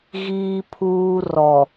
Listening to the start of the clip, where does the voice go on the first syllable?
high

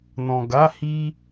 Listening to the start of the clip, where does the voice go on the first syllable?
low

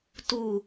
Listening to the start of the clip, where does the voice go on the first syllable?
low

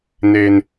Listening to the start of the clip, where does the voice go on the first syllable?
high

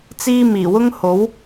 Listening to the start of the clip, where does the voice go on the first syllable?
high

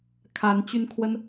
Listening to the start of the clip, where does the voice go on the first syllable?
rising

